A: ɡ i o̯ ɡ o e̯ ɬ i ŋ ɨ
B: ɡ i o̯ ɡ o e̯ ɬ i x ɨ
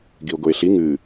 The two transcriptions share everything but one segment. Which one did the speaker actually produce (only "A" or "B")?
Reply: A